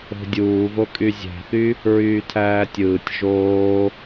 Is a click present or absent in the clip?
absent